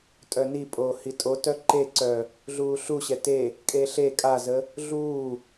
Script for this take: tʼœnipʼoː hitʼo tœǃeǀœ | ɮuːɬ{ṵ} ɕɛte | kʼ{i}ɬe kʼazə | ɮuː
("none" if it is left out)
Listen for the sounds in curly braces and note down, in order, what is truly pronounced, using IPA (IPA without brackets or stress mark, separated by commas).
u, e